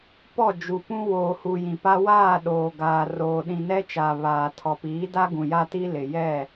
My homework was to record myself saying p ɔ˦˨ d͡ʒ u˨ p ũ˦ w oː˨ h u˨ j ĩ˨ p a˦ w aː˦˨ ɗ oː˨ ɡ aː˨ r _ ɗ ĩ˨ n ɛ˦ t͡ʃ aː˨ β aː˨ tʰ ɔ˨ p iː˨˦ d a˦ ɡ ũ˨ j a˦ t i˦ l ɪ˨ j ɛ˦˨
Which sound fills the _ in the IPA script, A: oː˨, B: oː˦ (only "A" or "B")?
A